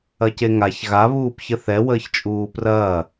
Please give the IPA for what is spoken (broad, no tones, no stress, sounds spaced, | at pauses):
ɐ c e ŋ a ç ɣ a β uː p ç ə θ ɛ w əː ç t͡ʃʼ uː p r ɐː